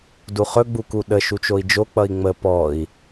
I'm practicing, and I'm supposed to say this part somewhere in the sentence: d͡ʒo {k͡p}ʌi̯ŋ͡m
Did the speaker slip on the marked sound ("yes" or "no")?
no